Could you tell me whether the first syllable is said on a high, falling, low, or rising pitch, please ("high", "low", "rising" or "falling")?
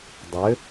rising